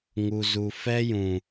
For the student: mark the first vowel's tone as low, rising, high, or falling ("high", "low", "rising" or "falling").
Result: low